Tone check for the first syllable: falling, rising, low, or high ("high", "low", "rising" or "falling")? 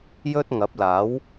high